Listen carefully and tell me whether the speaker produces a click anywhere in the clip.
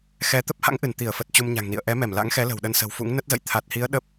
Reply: no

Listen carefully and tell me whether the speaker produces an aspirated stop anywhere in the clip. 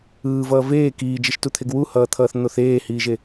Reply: yes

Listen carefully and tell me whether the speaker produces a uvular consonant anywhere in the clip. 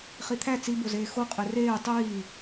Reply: yes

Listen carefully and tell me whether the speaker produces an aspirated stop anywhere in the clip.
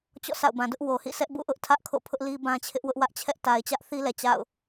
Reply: yes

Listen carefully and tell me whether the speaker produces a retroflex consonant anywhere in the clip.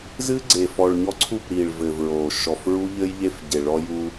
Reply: yes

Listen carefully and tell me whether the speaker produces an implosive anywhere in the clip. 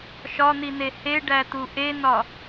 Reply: no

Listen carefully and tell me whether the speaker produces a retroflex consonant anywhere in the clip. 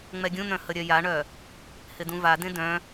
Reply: yes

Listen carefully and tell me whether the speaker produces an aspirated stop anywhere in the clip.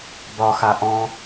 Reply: no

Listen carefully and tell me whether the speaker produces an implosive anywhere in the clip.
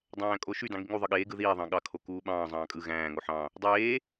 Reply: yes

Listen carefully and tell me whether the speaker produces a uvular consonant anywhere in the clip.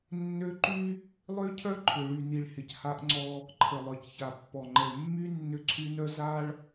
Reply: no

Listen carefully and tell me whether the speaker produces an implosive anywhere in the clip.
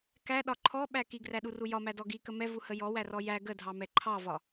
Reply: yes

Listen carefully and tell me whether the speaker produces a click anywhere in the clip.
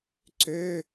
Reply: yes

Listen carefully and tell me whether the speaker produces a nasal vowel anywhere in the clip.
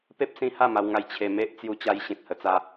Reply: yes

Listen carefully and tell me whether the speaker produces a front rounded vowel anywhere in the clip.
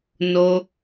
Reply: no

